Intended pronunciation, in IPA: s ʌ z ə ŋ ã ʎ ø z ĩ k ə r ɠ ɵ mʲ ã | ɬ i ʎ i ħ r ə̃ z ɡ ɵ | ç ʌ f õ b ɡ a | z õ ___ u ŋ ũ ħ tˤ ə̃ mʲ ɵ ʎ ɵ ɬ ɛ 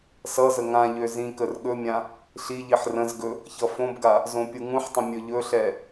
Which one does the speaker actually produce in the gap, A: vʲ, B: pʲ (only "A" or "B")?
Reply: B